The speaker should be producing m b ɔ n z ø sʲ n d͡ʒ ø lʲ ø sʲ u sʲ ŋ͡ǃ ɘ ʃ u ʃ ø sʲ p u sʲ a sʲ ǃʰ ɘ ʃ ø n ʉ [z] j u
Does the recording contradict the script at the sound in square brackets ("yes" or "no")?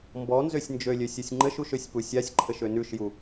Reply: yes